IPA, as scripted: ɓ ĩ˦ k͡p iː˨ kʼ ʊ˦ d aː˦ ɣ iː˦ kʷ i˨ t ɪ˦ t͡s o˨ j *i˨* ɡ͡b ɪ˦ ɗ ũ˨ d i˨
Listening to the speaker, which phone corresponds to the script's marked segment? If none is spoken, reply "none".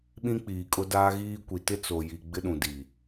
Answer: i˨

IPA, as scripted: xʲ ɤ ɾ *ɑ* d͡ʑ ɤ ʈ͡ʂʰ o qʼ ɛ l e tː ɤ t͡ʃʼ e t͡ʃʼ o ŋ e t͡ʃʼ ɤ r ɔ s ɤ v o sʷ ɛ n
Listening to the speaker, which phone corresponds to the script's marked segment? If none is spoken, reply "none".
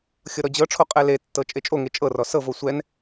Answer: ɔ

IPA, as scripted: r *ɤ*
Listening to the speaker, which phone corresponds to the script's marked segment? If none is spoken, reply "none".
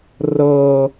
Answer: ɤː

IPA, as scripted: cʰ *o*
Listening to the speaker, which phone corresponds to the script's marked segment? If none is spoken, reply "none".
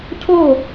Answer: o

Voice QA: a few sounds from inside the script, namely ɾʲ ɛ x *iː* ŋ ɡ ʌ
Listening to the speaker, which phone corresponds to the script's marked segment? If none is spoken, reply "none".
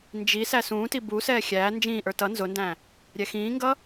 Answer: ĩː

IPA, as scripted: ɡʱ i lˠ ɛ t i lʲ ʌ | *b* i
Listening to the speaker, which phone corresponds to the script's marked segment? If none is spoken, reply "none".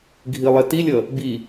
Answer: b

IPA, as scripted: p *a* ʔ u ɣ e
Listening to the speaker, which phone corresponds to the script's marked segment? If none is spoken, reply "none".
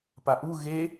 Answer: a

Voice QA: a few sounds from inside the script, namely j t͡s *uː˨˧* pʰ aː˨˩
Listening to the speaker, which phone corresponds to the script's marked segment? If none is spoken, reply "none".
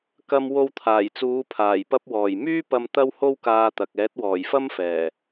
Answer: uː˨˧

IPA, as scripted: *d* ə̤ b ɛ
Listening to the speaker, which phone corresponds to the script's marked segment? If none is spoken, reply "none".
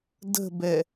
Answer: d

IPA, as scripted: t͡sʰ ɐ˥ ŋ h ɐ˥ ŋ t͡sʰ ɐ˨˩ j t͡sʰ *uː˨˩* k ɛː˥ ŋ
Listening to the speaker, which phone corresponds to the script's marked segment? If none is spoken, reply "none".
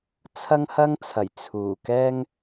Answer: uː˨˩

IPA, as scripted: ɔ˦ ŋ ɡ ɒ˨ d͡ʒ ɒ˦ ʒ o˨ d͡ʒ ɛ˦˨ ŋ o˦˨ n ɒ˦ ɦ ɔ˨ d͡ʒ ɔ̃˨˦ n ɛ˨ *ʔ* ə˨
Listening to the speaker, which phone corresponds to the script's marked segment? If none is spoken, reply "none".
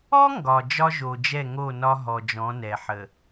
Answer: ħ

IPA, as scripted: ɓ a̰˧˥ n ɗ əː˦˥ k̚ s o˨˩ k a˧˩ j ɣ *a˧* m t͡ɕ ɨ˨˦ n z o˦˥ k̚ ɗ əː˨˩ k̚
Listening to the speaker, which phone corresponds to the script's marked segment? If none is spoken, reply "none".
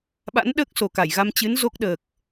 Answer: a˧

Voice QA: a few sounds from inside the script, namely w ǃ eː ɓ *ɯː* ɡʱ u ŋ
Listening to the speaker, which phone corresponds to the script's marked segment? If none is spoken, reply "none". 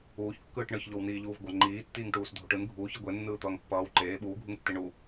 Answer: uː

